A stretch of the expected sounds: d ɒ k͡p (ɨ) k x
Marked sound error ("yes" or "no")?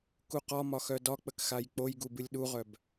yes